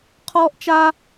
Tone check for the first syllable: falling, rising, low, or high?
high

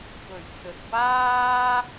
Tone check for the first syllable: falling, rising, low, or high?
low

